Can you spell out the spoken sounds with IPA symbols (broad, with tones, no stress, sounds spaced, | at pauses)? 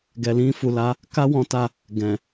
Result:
ɡ ɛ˨ l ĩ˧ f u˨ l a˨˦ | k a˦ w ɔ̃˦ t a˦˨ | ɡ ɛ̃˨